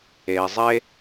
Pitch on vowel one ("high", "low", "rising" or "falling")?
low